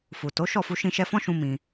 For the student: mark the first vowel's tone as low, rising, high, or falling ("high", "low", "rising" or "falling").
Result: low